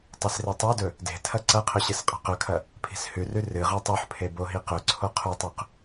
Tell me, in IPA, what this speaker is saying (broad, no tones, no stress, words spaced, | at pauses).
tˤisretˤodɵ | de̤tʰɐ ǀɐqʰɵ ɕɨsqʼa̤qɵkʰɐ | pʰi̤shʉrʉ rɨ ʁʉtˤuħpʰe boɦiqɵǀʰo qʰutˤʉq